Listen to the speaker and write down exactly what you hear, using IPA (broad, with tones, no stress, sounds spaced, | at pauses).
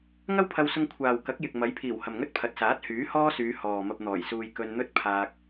ŋ ɐ˥ w pʰ ɐ˧ w s ʊ˧ ŋ kʷʰ aː˨ w k ɐ˨˥ k̚ j ɪ˨ k̚ m ɐ˨˥ j pʰ iː˨˩ w h ɐ˨ m ŋ ɵ˥ t̚ pʰ ɐ˨ t̚ s aː˨˥ t̚ h yː˨˥ h ɔː˥ s yː˨˧ h ɔː˨ m ɐ˧ p̚ n̪ ɔː˨˩ j s uː˧ j k ɵ˧ n n̪ ɵ˥ t̚ pʰ aː˧ k̚